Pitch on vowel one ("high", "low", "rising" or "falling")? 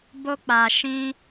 high